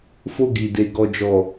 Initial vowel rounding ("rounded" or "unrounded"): rounded